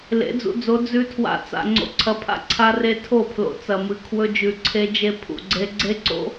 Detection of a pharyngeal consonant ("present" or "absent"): absent